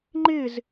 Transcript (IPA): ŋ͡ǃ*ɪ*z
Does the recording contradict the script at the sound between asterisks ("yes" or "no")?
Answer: no